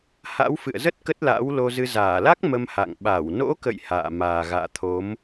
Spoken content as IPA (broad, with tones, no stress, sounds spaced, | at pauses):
h a̰˧˥ w f ɨ̰˧˨ ə̯ z ə˦˥ t̚ k ə˦˥ t̚ l a̰ː˧˥ w l o˧ z ɨ˧ z aː˧˩ l a˦˥ k̚ m ə˧ m h a̰˧˨ ŋ ɓ a˧˩ w n o̰˧˥ k ə̰˧˨ j h a̰ː˧˨ m aː˨˩ ɣ a̰ː˧˨ t̪ʰ o˨˦ m